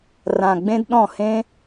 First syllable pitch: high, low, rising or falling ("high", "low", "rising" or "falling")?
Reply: low